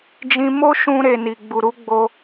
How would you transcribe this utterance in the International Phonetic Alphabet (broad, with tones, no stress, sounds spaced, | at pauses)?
d͡ʒ ĩ˧ m o˦ ʃ ũ˧ ɾ e˨ n i˨ ɡ͡b u˨ ɾ u˨˦ ɡ͡b o˧